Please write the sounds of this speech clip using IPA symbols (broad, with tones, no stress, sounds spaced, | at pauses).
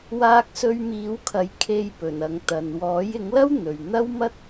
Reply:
w aː˧ k̚ s ɵ˧ ɥ m iː˨˥ w kʰ ɐ˨˥ j kʰ e˧ j p ɵ˨˩ n ɐ˨ ŋ t̪ ɐ˨ n w ɔː˨˥ j ɪ˨˥ ŋ l ɐ˥ w n̪ ɵ˨ ɥ n̪ ɐ˥ w m ɐ˥ t̚